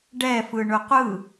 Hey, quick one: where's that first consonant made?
retroflex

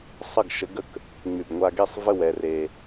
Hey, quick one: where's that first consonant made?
tongue tip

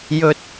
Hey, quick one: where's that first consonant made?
palate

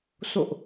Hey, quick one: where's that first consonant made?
tongue tip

